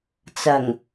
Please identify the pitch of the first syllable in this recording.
low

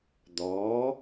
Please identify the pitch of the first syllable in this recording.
rising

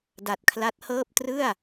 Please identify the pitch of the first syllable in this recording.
low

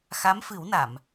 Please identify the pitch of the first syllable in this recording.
rising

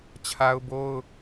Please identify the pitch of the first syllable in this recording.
high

